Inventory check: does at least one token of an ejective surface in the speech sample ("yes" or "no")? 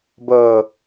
no